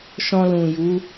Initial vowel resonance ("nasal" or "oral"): nasal